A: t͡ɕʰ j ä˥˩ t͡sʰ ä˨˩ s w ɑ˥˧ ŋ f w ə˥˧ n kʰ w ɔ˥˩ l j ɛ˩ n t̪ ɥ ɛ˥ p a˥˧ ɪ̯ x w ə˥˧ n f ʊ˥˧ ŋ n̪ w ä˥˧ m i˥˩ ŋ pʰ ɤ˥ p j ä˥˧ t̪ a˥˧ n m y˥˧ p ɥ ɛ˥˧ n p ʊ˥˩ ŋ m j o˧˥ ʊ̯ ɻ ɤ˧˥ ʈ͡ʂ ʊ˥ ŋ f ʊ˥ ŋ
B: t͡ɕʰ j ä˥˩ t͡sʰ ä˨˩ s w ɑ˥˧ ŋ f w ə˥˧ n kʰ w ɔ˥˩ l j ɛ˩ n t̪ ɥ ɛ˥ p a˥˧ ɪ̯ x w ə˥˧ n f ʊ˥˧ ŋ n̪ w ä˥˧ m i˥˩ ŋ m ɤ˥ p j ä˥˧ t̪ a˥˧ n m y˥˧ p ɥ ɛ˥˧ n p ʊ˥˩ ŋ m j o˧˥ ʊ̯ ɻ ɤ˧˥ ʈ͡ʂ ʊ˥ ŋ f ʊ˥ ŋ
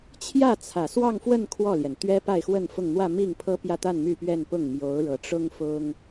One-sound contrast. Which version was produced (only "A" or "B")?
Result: A